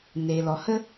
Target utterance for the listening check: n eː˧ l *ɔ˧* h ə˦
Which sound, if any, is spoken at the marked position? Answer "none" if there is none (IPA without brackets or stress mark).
ɔ˧